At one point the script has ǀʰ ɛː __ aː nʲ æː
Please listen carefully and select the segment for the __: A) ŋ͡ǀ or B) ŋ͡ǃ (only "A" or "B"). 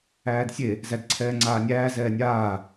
A